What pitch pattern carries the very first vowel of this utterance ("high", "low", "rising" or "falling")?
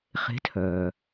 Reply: rising